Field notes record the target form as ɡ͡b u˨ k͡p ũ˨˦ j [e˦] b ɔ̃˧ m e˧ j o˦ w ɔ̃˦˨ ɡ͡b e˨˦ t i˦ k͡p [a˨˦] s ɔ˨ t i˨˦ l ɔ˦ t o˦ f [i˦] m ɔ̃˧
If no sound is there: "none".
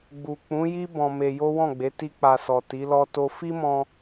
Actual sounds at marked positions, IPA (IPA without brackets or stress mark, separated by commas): i˦, a˧, i˦